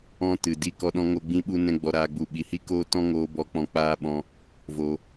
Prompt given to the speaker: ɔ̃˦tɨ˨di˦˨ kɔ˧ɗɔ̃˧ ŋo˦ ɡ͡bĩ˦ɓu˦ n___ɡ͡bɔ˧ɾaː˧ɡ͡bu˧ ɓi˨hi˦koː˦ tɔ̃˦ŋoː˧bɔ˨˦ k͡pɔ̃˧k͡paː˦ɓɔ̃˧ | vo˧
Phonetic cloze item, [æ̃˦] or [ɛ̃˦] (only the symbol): ɛ̃˦